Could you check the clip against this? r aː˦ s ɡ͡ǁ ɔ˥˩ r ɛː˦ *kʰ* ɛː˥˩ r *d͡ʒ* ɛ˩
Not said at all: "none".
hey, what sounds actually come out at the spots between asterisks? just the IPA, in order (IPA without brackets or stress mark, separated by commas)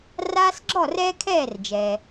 kʰ, d͡ʒ